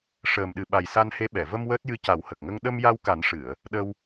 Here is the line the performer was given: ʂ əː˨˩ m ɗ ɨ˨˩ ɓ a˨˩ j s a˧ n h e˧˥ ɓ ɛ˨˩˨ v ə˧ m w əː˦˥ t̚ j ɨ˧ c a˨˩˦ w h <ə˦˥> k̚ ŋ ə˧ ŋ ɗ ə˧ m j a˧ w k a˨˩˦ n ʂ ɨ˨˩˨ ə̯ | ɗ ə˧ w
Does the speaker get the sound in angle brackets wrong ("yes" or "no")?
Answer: yes